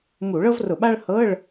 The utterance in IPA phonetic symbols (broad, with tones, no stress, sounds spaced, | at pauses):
m u˧˩˧ ɭ ɤ˥ v r ʊ˧˩˧ ɓ a˥ ɭ h ɤ˧˥˧ ɭ